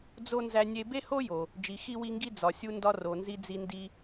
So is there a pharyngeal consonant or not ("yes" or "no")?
no